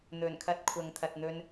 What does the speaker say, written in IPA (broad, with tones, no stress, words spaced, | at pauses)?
n̪ɵ˨˩nkʰɐ˧t̚ kʷʰɐ˨ŋt̪ʰɐ˨t̚n̪ɵ˧n